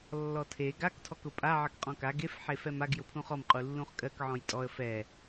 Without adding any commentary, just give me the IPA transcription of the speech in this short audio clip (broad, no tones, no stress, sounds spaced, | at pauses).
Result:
lː ɔ tʰ e ɡ a k tʰ ɔ k ʊ pʼ a ʕ ɜ k qʼ ɔ̃ k a ɡ e f ħ e f ɛ m a ɡ j ʊ pʰ ũ χ ɔ m qʼ u lː ũ χ kʼ ɜ k ʕ ɔ̃ j tʼ ɔ ə̯ f ɛ